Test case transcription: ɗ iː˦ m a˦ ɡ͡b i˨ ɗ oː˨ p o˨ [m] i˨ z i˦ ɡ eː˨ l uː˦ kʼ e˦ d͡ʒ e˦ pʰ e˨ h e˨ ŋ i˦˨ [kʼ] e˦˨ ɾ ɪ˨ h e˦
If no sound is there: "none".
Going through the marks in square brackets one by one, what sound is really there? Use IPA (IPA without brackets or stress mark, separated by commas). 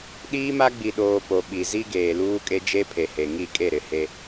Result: ɓ, kʼ